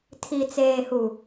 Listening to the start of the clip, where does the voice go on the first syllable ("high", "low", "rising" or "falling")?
low